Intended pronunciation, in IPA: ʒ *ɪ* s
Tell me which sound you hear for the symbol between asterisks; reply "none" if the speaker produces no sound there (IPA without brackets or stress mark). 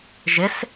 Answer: ɪ